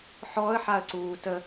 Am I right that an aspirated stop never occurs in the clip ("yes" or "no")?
yes